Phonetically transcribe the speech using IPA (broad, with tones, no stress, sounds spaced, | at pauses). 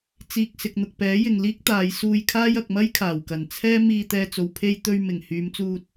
t͡s iː˨ k̚ s ɪ˨ k̚ n̪ ʊ˨ k̚ p ɛː˨˥ j ɪ˨ ŋ l iː˥ k̚ t̪ aː˨˧ j s uː˧ j kʰ aː˥ j ɐ˨ k̚ m ɐ˥ j kʰ aː˨˩ w k ɐ˨˩ n t͡sʰ ɛː˥ m iː˧ t̪ ɛː˧ t͡s o˨ w pʰ e˧ j t̪ ɵ˧ ɥ m ɪ˨˩ ŋ h yː˨˧ m t͡s uː˧ t̚